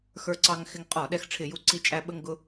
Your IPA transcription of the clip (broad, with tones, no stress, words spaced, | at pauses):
xə˞˧ǀɑ˧ŋxɪ˧ŋ qʼɔ˧˩˧ ɗɛ˧xʈ͡ʂʰɪ˧˩˧ju˧ǀi˧ t͡ʃʼæ˧ɓə˧ŋ ɡʊ˧